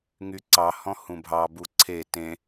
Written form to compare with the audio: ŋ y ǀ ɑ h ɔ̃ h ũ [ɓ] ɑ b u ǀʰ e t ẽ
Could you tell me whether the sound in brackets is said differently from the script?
yes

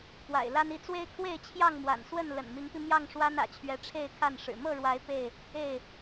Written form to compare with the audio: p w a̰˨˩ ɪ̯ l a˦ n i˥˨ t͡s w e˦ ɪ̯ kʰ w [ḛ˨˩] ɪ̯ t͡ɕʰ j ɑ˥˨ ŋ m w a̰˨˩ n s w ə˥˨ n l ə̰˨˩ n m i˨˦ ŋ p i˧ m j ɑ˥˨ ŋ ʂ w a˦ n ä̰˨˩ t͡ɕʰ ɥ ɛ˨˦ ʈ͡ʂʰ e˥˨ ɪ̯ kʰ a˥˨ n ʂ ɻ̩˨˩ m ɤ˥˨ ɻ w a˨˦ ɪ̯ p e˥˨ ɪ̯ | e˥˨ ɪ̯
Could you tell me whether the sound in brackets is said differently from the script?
yes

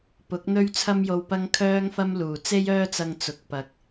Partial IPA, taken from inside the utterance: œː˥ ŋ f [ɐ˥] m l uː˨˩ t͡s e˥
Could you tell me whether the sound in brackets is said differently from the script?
no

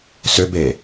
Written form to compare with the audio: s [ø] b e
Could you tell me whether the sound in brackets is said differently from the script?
no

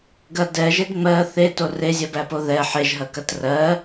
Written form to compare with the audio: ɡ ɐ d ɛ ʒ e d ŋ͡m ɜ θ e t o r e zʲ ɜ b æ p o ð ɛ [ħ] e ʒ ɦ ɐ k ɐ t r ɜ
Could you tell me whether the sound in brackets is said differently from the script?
no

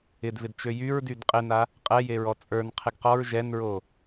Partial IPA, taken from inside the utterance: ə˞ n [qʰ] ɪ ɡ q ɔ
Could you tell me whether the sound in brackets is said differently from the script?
no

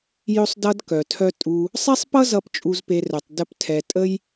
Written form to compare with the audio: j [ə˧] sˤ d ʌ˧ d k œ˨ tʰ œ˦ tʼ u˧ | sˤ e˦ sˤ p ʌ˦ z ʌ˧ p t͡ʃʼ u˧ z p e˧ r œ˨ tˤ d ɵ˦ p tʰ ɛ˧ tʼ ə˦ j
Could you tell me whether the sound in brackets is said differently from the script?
yes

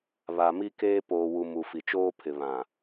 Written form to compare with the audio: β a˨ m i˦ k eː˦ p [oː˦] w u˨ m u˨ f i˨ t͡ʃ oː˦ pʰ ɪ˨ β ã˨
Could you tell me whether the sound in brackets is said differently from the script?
yes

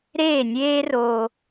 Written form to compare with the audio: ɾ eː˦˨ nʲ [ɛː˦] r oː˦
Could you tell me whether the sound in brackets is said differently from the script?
yes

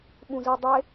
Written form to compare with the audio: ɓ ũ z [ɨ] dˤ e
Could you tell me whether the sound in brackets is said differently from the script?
no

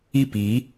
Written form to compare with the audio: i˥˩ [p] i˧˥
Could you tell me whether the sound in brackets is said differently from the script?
no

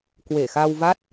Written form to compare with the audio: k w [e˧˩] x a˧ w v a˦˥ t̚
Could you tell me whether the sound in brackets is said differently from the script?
no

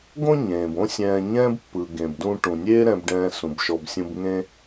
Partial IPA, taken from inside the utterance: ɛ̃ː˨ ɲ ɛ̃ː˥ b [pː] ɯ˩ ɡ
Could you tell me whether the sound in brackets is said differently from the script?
no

